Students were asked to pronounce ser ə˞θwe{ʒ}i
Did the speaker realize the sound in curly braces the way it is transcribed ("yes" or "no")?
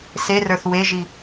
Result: yes